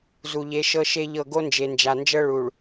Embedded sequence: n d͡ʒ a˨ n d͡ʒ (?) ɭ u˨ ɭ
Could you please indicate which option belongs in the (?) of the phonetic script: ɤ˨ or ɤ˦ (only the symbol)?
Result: ɤ˦